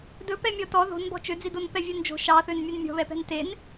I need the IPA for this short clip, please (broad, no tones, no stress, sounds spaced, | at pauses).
d ɵ p ɛ mʲ ɔ t ɔ ð o̤ n b ɔ̤ t͡ʃ ø d͡z i d o n p ɛ vʲ œ n d͡ʒ o̤ ʃ ɑ θ ø n mʲ ɵ n mʲ ɔ̤ β ɛ p ɛ̤ n t e n